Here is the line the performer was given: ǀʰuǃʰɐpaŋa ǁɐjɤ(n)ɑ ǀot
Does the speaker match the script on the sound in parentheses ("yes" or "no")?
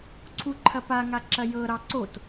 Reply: no